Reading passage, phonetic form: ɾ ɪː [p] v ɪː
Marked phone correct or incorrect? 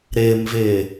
incorrect